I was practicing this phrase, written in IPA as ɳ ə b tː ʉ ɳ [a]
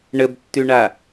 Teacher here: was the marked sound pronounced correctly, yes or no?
yes